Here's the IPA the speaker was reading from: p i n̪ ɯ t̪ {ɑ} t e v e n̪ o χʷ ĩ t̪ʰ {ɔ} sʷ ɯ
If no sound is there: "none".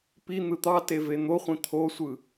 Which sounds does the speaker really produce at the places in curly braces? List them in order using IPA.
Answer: ɑ, o

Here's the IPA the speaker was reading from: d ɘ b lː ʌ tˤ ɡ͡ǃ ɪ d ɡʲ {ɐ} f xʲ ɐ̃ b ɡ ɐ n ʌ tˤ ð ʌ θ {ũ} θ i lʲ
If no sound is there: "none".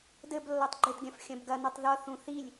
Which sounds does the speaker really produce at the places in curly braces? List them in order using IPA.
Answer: ɐ̃, ũ

